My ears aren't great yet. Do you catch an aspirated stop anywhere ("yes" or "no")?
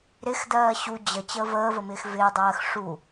no